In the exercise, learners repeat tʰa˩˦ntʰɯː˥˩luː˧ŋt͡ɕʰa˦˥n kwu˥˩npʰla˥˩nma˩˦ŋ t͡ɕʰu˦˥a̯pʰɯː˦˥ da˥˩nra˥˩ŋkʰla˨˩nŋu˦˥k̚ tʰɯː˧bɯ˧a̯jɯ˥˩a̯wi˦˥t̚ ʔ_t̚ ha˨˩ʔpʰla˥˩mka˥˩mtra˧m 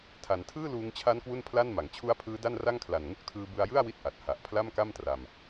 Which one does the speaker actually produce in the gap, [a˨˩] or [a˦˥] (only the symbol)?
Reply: a˨˩